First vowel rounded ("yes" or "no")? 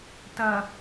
no